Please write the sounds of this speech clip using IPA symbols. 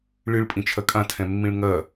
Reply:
ɭ ɨ ɭ pʼ ĩ t͡ʃʰ ɐ kʼ ã tʰ ɛ̃ mː ĩ ɭ ŋ ɐː

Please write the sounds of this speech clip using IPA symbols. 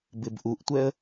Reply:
b ɪ b ʔ u ʔ tʷ ɛ ə̯

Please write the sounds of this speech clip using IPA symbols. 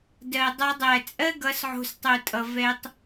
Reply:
d ɜ˨ dˤ a˧ dˤ æ˨ t͡sʼ ɜ˦ ɡ ʌ˨˦ s ʕ o̤˧ s tˤ o˨ tʼ ʌ˨ v ɛ˧ tˤ

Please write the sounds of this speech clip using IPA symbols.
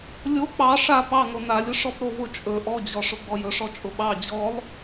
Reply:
lʲ o k͡p ɑ ʂ a p ɑ ŋ o n a lʲ ʊ ʂ ɔ p ɾ o v ʊ t͡ʃʼ ɵ ʔ ɔ d͡ʑ ɔ ʂ ʊ ɡ͡b ɔ j ɵ ʂ ɔ t͡ʃʼ ʊ ɓ ɑ d͡ʑ ɔ lˠ

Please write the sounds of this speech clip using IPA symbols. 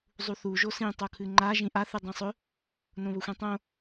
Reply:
zˤ u θ u ʒ o s ĩ tˤ o kʰ ɨ ŋ͡ǃ a ʒ ĩ ʔ a θ ɨ dˤ ĩ sˤ ɵ | n õ β ɵ xʷ ĩ tˤ õ

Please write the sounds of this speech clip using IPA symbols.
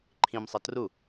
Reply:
ǃʰ ĩ m sˤ ʌ t r u

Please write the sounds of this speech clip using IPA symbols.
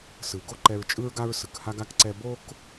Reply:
s ɯ˨ ɡ o˦ ǃ ɛ˧ ɹ t͡ʃʼ ɯ˦ ɹ ɡ a˦ ɹ s ɯ˨ k h a˦ ɡ a˦ k ǀ ɛ˧ b o˦ k

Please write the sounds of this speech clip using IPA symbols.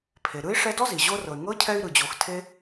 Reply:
pʰ e˩ ɾ ɯ˥ i̯ ʂ ɛ˦ d ɔ˥ z i˩ ʑ o˦ r ɤ˩ y̯ ŋ ɤ˥ cʰ ɛ˦ y̯ ɾ ɯ˩ d͡ʑ o˨ x tʰ e˦

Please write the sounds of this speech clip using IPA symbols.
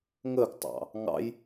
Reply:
ŋ ə ɡ tˤ ɑ̰ | ŋ ɑ̰ j

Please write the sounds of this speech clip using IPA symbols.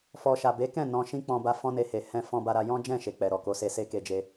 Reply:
f ɔ˨ ʃ a˨ b e˨˦ k ɛ̃˦˨ n ɔ̃˧ ʃ ĩ˦ k͡p ɔ̃˧ b a˧ f ɔ̃˦ n e˧ h e˨ h ɛ̃˧ f ɔ̃˧ b a˧ ɾ a˧ j ɔ̃˦ d͡ʒ ɛ̃˦˨ ʃ e˨ k͡p ɛ˨ ɾ ɔ˨ k o˨˦ s e˧ s e˦ k e˧ d͡ʒ e˧

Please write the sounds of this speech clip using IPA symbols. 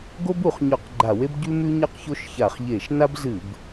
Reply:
ɡ o˥ b u˧˩˧ χ ɲ ɵ˧˩˧ q ɡ͡ǃ a˧˩˧ w e˥ b ɟ ʉ˥ m ʉ˥ ɲ ɐ˥ q ç o˥ ʃ ç a˧˩˧ χ ʎ e˧˩˧ ʃ n a˥ b z ɨ˧˩˧ b

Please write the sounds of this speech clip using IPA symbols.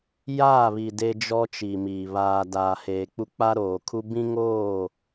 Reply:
j aː˦˨ β i˨ d e˦ d͡ʒ ɔ˦ t͡ʃ i˨ m iː˨ β aː˨ d aː˨ h eː˨ k͡p u˦ k͡p a˦ ɾ oː˨ kʰ u˦ b ĩ˦ ŋ oː˦˨

